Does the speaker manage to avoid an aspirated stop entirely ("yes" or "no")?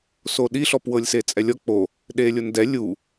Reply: yes